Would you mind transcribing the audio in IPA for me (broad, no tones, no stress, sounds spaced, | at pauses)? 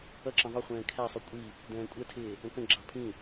ʌ ǁ ə̃ ðˤ ʊ χʷ ɛ̃ː kʰ æ sˤ u kʷʼ i | d ɛ̃ː kʷʼ ɛ tʰ ɪː | ə̃ k ə̃ ɡ͡ǁ ɑ pʰ ĩ